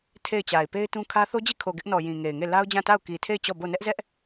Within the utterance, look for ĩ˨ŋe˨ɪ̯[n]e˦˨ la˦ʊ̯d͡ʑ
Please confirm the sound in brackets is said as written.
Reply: no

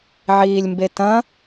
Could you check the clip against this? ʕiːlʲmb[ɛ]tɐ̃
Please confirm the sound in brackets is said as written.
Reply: no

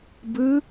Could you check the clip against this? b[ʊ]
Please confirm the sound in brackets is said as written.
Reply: no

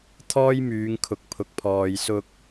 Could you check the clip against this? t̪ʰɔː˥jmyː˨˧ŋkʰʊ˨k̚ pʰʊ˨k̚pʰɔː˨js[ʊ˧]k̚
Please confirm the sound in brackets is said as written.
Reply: yes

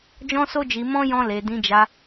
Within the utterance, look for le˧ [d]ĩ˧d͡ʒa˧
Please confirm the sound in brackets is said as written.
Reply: yes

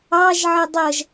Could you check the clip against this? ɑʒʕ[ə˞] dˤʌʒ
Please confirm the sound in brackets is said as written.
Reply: no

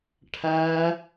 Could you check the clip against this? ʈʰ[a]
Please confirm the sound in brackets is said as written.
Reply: no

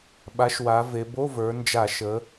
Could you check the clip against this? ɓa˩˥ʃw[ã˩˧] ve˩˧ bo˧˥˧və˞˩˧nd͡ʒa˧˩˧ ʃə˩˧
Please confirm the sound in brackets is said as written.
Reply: no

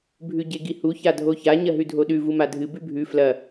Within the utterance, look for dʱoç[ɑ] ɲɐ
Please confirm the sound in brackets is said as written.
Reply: no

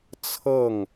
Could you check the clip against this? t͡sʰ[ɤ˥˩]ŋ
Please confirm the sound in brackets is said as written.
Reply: yes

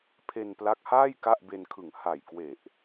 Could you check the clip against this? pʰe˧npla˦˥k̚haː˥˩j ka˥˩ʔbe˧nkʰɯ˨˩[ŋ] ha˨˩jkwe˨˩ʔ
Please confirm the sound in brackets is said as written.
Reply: yes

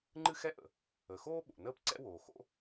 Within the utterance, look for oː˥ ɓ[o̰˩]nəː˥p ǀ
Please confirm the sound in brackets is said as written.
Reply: yes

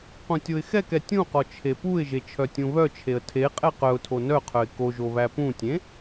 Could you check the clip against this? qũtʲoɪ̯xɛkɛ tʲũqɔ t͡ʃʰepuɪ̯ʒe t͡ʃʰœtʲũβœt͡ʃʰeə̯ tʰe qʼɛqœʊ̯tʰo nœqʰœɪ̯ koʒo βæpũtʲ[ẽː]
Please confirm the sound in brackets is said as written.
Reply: no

